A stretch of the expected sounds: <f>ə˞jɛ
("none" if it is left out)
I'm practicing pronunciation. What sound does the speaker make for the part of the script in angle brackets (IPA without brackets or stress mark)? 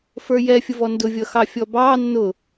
f